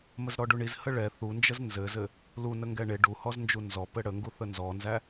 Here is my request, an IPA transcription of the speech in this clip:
m ə z ɾ ɔ ɖ u ɳ i z h ə ɭ ɛ θ u n d͡ʒ ə z n z ɘ z ɘ | l u n ə ŋ ɡ ɛ ɳ e ɖ u h ɔ z n d͡ʒ u n z ɔ p ɘ ɽ ə ŋ ɡ u θ ə n z ɔ n z æ

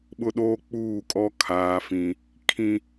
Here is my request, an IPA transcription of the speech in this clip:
ɓ ʊ˦ ɗ oː˦ k͡p uː˦˨ kʼ ɔ˦ kʰ aː˨ f ĩ˨ | kʰ ĩ˦

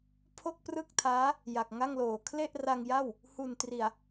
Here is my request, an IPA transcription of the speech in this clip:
pʰ o˥˩ k̚ p r ɯ˥˩ k̚ tʰ aː˦˥ | j a˨˩ k̚ ŋ a˥˩ ŋ l oː˩˦ kʰ l e˥˩ ʔ r a˧ ŋ j a˥˩ w | h u˨˩ n t r i˨˩ a̯

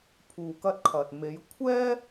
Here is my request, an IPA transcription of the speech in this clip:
pʰ uː˨ k ɐ˧ t̚ kʰ ɐ˨ t̚ m e˨˧ j kʷʰ ɛː˥

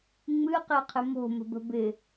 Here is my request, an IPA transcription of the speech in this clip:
ŋ͡m ɨ q e qʰ ɪ m o̤ m ə̤ b ə̤ b ɪ

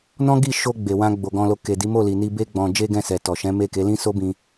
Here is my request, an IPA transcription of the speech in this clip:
n ɔ̃˦ ɡ i˦˨ ʃ o˧ ɡ͡b e˨ w ã˧ ɡ͡b o˨ ɡ ɔ̃˧ l o˧ k e˨ d i˨˦ m o˦˨ l i˨ n i˧ b e˦ ɡ͡b ɔ̃˧ d͡ʒ e˦ ɡ ɛ̃˦˨ s ɛ˨ t ɔ˨ ʃ ɛ̃˨˦ m e˦˨ k e˨˦ l ĩ˦ s o˦ b ĩ˧

